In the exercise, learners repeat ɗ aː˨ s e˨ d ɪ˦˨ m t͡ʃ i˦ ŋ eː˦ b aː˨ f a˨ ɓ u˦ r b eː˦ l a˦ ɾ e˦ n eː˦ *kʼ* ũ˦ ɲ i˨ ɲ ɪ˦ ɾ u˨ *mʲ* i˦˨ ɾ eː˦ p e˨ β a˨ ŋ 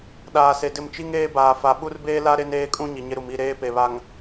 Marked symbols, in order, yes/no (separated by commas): yes, no